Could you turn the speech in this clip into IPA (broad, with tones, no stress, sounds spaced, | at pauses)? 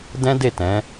d ɛ̃˦ d e˦˨ t ɛ̃˨˦